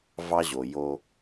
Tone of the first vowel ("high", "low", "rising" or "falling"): high